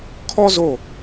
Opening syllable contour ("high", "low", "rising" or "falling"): high